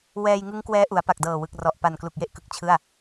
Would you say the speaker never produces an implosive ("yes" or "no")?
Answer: yes